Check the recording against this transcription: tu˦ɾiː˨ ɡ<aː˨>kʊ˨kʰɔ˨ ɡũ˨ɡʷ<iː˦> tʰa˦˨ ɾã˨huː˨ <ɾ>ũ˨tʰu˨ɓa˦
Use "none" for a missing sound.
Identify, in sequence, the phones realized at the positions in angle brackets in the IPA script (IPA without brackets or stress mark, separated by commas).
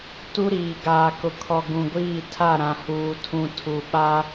aː˨, iː˦˨, tʰ